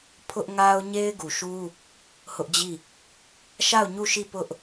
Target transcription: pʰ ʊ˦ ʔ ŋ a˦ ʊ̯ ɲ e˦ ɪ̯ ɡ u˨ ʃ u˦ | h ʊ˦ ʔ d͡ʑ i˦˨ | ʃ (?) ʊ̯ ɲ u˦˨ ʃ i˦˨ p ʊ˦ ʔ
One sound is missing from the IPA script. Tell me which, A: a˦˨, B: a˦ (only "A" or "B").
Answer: A